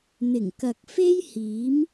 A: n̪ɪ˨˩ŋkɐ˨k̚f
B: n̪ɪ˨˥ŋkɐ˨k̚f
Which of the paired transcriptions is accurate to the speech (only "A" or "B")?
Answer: A